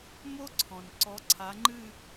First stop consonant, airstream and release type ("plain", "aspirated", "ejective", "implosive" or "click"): click